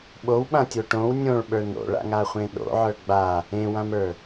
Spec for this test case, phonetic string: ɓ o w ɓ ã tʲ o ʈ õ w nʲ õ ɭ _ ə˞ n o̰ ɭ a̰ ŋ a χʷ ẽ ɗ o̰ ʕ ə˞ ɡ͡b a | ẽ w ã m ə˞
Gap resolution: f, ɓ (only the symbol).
ɓ